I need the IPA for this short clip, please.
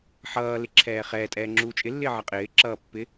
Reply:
ħ ʌː l ɪ ǁʰ ɛː χ ɛː tʼ ɛː ŋ͡ǁ uː t͡ʃʼ ɪ lː ɪː ʕ ʌ qʼ ɪː ǁ ʌː pː ɪ

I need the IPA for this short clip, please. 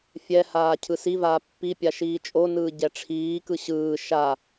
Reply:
fʲ ɛ h aː cʰ ɯ s i v aː pː i pʲ a ʃ iː t͡ʃʼ o n ɯː ɟ ɛ ʈ͡ʂʰ iː k ɯ ɕ ɯː ʃ a

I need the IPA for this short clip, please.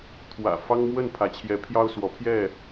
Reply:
t̪ʰ w ä̰˨˩ f ɑ˦ ŋ m w ə˥˨ n pʰ ä˨˦ t͡ɕʰ j ɛ˨˦ pʰ j ɑ˦ ʊ̯ s w ɔ˨˦ pʰ j ɛ˥˨

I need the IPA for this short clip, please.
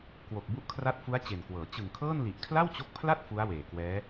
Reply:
k w o˨˩ k̚ b u˦˥ ʔ kʰ r a˦˥ t̚ f u˦˥ a̯ t͡ɕ e˨˩ n k w ɤː˩˦ t͡ɕ ɯ˨˩ ŋ kʰ ɤː˥˩ n l i˨˩ ʔ kʰ l a˥˩ w t͡ɕ o˦˥ k̚ pʰ l a˥˩ t̚ f u˦˥ a̯ w eː˨˩ k w ɛː˦˥

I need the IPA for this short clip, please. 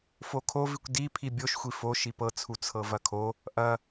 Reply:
f o kʰ o v i kʷ d i pʰ i bʲ o ʃ xʷ i f o ʃ i p ɤ t͡sʰ u t͡sʰ ɤ v ɐ kʰ o | ʔ ɐ

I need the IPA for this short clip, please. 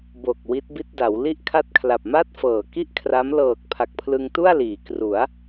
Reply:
b o˨˩ k̚ w i˦˥ t̚ b i˥˩ t̚ d a˩˦ w l i˥˩ ʔ kʰ a˥˩ t̚ kʰ l a˨˩ p̚ m a˥˩ t̚ f ɤː˨˩ k i˥˩ ʔ kʰ r a˦˥ m l ɤː˨˩ k̚ pʰ a˨˩ k̚ pʰ l ɯ˧ ŋ t u˥˩ a̯ l iː˩˦ k r u˩˦ a̯

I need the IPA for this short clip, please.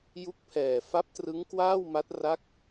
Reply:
j u˦˥ k̚ pʰ ɛː˨˩ f a˦˥ p̚ t r ɯ˦˥ ŋ k w aː˥˩ w m a˦˥ t̚ r a˦˥ k̚

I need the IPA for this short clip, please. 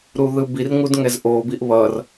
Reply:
ɾ u ð ɯ b i r ŋ u d ŋ ɛ z ʔ o b i ʔ β ʌ r

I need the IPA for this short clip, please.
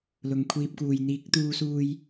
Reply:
l ʊ˨ ŋ kʷʰ iː˧ p̚ k uː˨ j n̪ iː˨˥ k̚ t̪ uː˧ s uː˧ j

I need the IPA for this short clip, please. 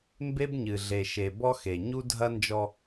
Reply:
m b e˦ b ɲ ɨ˨ ɮ e˨ ʃ e˨ b ɔ˦ x e˨ ɲ u˦ dʱ ɐ˦ n d͡ʒ ɔ˦

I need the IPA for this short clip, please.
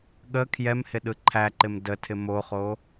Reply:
ɠ ə kʰ j ɛ m h ɪ ɗ ɯ ǃʰ æ ǃ ɪ m d ə tʰ ɪ m o χ o

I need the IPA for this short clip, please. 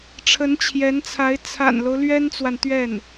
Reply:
ʈ͡ʂʰ ə˧˥ n t͡ɕʰ j ɛ˧˥ n t͡sʰ a˧˥ ɪ̯ t͡sʰ a̰˨˩ n l o˦ ʊ̯ l ɥ ɛ˥ n t͡s w a˨ n t̪ ɥ ɛ˥˩ n

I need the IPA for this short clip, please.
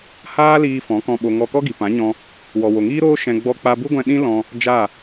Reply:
h aː˦ l iː˧ f ɔ̃˨˦ k ɔ̃˧ ɓ o˧ ŋ ɔ˧ k ɔ˦ ɡ i˨ p ã˨˦ ɲ ɔ̃˧ | w ɔ˨ w o˨ ŋ iː˦ ɾ oː˦ ʃ ɛ̃˧ ɡ͡b ɔ˧ k͡p a˧ b u˦ ɡʷ ɛ̃˧ ɗ ĩ˦ l ɔ̃˧ | d͡ʒ a˦˨

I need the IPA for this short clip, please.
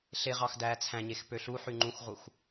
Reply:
ɬ e ʁ ɑ x d æː t͡sʰ æ̃ ɲ e x p ø ɬ u ħ y ŋ͡ǃ ũ x ʁ u x

